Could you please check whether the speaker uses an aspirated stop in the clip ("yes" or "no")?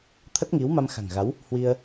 yes